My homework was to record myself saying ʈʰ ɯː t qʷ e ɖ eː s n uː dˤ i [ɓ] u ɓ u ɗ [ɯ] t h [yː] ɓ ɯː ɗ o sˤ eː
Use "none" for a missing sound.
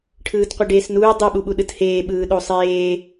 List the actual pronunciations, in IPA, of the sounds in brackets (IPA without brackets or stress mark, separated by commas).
ɓ, ɯ, eː